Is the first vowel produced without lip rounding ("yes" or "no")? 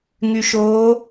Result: no